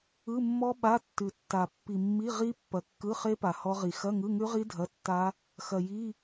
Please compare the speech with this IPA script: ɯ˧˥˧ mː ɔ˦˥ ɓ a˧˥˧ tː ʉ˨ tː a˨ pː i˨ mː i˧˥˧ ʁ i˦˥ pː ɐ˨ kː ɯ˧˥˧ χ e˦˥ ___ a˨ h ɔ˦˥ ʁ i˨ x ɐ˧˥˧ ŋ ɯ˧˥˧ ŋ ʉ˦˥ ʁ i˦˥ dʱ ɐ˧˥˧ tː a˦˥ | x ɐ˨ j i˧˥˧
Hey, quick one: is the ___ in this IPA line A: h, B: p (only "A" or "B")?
B